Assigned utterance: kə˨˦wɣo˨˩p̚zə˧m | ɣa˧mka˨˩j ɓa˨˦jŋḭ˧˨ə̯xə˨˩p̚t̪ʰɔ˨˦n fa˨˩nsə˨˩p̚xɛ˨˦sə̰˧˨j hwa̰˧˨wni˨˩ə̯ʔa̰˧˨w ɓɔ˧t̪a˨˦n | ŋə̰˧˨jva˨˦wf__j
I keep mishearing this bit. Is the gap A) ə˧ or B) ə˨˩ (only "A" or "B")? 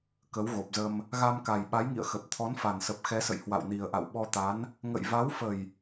B